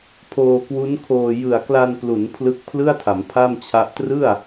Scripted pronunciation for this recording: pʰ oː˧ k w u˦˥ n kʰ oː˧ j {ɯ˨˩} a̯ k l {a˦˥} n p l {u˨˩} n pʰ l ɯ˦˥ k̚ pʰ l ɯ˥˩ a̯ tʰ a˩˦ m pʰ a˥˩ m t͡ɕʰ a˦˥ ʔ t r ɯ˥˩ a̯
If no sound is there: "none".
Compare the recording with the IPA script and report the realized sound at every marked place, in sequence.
ɯ˨˩, a˧, u˩˦

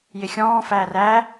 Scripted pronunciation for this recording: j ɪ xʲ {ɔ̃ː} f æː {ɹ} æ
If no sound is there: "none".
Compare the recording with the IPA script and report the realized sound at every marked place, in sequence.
ɔ̃ː, r

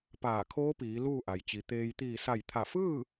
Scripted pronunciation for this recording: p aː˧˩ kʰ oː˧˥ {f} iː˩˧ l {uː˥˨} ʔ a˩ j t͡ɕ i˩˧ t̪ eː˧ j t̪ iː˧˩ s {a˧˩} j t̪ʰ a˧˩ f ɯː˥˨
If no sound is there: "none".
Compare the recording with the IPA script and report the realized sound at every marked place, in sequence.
p, uː˥˨, a˧˩

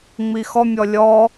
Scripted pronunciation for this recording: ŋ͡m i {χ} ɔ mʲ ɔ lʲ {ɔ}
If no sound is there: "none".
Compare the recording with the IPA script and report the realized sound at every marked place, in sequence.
x, ɔ

